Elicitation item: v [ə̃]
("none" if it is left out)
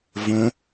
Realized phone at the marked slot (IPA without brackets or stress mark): ə̃